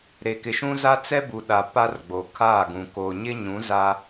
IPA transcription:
ɾ e˨ k ɪ˨ ʃ ũ˦ z a˦ t͡s ɛ˦ b u˨ ɗ a˨ p a˦ r ɡ͡b o˨ kʰ aː˦˨ ɡ ũ˨ k oː˨ ɲ ɪ˦ ɲ ũ˨˦ z a˦

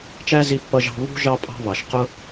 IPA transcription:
t͡ʃ æ˦ z i˧ pː ʌ˧ ʒ ɑ̤˧ β ṳ˦ ʒ ɑ˦ pʼ ɑ̤˦ β ɑ˨ ʃ q ʊ˦

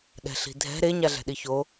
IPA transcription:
ɗ ɛ̤ ɬ i̤ dʱ ɛ̤ ɾ e ɲ a ɮ ɛ̤ ɗ i ç o

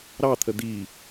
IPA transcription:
ɾ ɑ t̪ʰ ə d̪ i

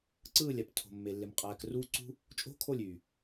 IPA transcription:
ǀ ɯː˦˨ lʲ æ˨ p tʰ o̤˨ mː e˨ lː e˨ m qʼ æː˨ k r uː˦ ǀ ṳ˦ | t͡ʃʼ o̤˦ kʰ o˦˨ lʲ y˨

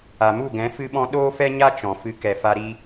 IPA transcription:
a˨ m u˦˨ ɡ ɛ̃˨˦ f ɨ˧ ɓ ɔ̃˧ ɗ oː˦ f ɛ˦ ɲ a˦ t͡ʃ ɔ̃˨ f ɨ˧ k ɛ˨ f a˧ ɾ i˧

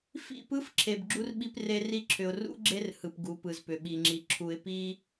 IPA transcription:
f ḭ˦˨ p ɯ˦ f ǁʰ e˨ b ɡ͡ǁ u˦ r ɓ i˦ p r e˦ r i˦ ǁʰ ʏ˨ ʊ̯ r ṵ˦ ɡ͡ǁ e˦ r h ɯ˨ p ɡ u˨˦ p ɯ˨ z p ʏ˨ ɓ i˨ ŋ͡ǁ i˨ ǁʰ u˨ ɪ̯ p i˦

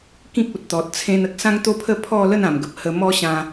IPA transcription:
k ĩ˦ k̚ u˨ t̚ t̪ ɔ˨ t̚ t͡sʰ ẽ˧ n ə˦ k̚ s ã˦ ŋ t̪ o˦ pʰ ə˥˧ pʰ ɔ˥˧ l ə˥˧ n ã˨˩ m ɡ ə˨ p̚ h ə˧ m ɔ˦ ɕ ã˧

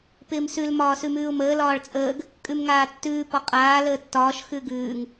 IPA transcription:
p ɪː m s ʉ l m ɒː s ʉ m ʉː ʊ̯ m əː l ɒː ɭ t͡sʼ əː ɡ | kʼ ʉ m ŋ aː tː ʉː p ɒ qʼ aː l əː tː ɒː ʃ x ʉ ɡ ʉː ŋ

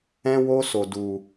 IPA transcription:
ɛ̃˦ w o˦ s o˧ d u˧

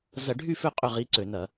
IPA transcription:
z ɐ˧˩˧ ɖʱ y˥˨ f ʏ˥˨ qʼ ʏ˥˨ ʁ i˧˥ ǀ ø˧˩˧ n ɐ˧˩˧

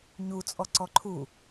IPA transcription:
ɲ u t͡sʼ ɔ ǀ ɔ ǃʰ u

